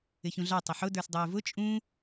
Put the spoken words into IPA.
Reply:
ɪ ç ũ ɮ ɑ tˤ ɪ ħ ʊ d ə˞ s dˤ ʊː v ʊ t͡ʃʼ ũ

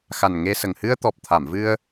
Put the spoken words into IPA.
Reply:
x a˨˩ n ŋ e˧ s ə˨˩ ŋ h ɨ˧ ə̯ t̪ ɔ˨˩ p̚ t̪ʰ a˨˩˨ m v ɨ˧ ə̯

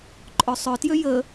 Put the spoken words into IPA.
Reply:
ǃʼ œ sˤ œ t j ø j ə

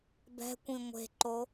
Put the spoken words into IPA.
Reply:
b ɛ̤ kʷ ĩ ŋʷ e̤ ǃ o

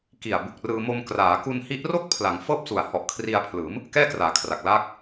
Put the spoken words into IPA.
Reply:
k i˨˩ a̯ b u˨˩ k̚ r ɯː˧ m o˧ m k r aː˩˦ k u˧ n h i˦˥ ʔ r o˥˩ k̚ pʰ l a˩˦ ŋ f ɤː˥˩ p̚ s u˨˩ a̯ h ɔ˨˩ ʔ kʰ r i˧ a̯ pʰ l ɯː˩˦ m | k ɛː˥˩ k r aː˩˦ kʰ r a˨˩ k̚ l aː˦˥ k̚

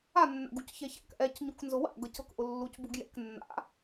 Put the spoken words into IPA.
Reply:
a nː a̰ ɡ u c ç ɛ ç a̰ k ʔ ɛ c ɲ u k n z ʊ w a̰ ɡ ɤ c ɤ k ʔ ʊ lː u c b u ɡ j ɛ̰ k nː a̰

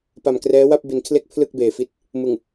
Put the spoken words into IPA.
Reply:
p a˨˩ m k r ɛː˦˥ w a˥˩ p̚ b i˨˩ n kʰ l e˥˩ k̚ pʰ l ɯ˥˩ k̚ b eː˨˩ f i˦˥ t̚ | m ɯ˨˩ ŋ

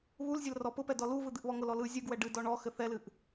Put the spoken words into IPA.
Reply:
β u l zʲ ɛ l r ɔ p ʊ p ɛ d ɔ l u v ɯ d̪ ɨ ʔ β ɔ ŋ ʊ l ɔ l ɯ zʲ ɯ ɡ w ɛ ɖ ɨ d ɔ ɳ ɔ x ɘ θ ɛ l ɨ ʔ

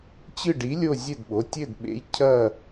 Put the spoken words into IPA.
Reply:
t͡ɕ ɨ˦˨ ɖ i˨˥ lʲ o˦˨ zʲ ɘ˦˨ d ɓ o˩˧˩ tʲ ɘ˦˨ d ɓ ḛ˨˥ j cʰ ɐ˦˨

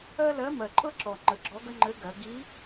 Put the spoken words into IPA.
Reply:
ɜ˥ l ɜ˧˥ m ɜ˨˩ ǃʼ ɤ˥ ǁ ɔ˨˩ ŋ͡ǃ ə˩˥ ɡ͡ǁ ɔ˧˥ ɡ ə˥ ŋ͡ǃ ɘ˧˥ ɡ ɜ˩˧ ɡ i˧˥

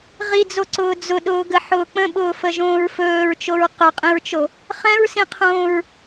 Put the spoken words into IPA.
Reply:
ʁ i d͡z o ǀ ʊː d͡z ʊ ɗ ʊː ɡ ə ħ ʊː k͡p ə̃ ɓ ʊː f ə ʒ õː ɹ f ɵː ɹ t͡ʃ o ɹ q ɵ qʼ ĩ ɹ t͡ʃ o | χ ɛ̃ ɹ s ĩ qʰ õː ɹ

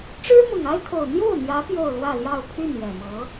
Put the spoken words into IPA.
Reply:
ʈ͡ʂ ɻ̩˥ m ʊ˨˩ ŋ a˥ ɪ̯ kʰ o˨˩ ʊ̯ n̪ j o˥˩ ʊ̯ n̪ j ä˧˥ p j o˥˧ ʊ̯ l w ä˥˧ l j ɑ˥˧ ʊ̯ pʰ y˥˩ n j ɛ˨˩ m ɤ˧˥

